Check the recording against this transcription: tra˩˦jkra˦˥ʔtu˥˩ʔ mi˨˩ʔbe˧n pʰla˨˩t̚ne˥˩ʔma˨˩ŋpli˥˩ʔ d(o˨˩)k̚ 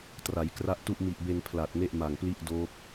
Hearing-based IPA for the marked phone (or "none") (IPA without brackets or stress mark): o˦˥